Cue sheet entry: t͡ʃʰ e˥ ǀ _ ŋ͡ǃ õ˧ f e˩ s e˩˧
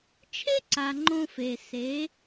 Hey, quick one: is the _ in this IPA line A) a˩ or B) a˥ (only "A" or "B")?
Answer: A